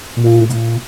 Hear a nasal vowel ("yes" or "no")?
yes